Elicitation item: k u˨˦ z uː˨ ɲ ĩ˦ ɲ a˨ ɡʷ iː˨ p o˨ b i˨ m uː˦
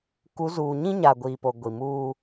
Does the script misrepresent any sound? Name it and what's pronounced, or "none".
b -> ɡʷ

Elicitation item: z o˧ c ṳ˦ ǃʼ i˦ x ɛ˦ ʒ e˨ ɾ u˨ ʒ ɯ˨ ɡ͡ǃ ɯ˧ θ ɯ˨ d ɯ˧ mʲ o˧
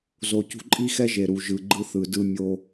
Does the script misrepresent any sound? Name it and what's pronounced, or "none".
none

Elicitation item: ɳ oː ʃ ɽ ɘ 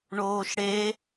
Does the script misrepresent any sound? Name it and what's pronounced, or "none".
ɘ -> e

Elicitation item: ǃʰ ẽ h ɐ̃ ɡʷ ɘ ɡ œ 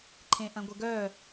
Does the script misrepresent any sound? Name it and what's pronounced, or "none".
h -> ʔ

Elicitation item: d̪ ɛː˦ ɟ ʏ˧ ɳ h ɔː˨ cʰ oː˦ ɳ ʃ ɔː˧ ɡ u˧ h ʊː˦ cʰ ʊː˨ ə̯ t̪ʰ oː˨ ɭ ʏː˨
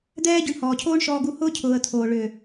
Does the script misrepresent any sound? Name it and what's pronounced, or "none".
none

